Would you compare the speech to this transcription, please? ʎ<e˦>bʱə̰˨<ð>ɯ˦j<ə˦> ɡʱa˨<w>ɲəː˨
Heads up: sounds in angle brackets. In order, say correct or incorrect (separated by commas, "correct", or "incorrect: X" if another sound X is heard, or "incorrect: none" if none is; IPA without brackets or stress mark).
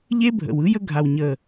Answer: correct, incorrect: w, correct, correct